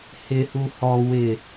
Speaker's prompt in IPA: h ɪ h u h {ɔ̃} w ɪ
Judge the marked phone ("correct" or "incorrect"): incorrect